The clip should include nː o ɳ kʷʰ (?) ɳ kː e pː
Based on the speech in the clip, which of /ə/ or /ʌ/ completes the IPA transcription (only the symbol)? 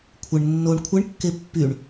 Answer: ə